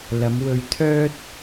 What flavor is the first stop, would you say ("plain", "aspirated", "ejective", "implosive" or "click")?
aspirated